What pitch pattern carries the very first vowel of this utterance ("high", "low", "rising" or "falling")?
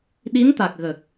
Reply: rising